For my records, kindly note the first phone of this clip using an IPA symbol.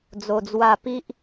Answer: d͡z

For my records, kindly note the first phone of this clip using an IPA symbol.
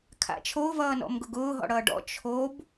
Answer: kʰ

